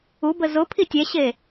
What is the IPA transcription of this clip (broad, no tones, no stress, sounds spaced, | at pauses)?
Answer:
u b ə z ʊ pʰ i tʲ ɛ ɕ e